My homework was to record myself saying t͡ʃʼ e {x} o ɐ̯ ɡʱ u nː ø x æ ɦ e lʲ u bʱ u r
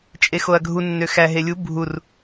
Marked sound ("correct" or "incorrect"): correct